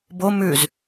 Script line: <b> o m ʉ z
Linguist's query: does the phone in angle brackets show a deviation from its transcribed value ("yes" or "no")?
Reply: no